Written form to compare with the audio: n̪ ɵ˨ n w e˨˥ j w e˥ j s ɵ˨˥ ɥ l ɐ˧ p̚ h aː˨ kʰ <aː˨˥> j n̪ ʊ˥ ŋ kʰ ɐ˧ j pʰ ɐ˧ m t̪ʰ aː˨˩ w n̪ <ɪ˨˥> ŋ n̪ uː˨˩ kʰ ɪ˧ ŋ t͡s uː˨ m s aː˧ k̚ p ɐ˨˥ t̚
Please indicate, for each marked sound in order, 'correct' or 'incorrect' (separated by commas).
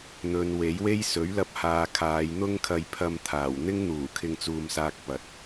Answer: incorrect, incorrect